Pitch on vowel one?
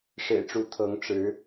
low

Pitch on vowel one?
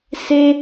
high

